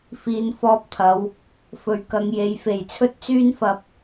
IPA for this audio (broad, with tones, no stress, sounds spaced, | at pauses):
f iː˨˧ n f ɔː˧ p̚ t̪ʰ ɐ˨˧ w | f ɵ˨˥ ɥ k ɐ˨˧ ŋ j e˨˧ j f e˨˩ j t͡sʰ ɵ˥ t̚ t͡s yː˥ n f ɐ˧ p̚